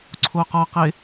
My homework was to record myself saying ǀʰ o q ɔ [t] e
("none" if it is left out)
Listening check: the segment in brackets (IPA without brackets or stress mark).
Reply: q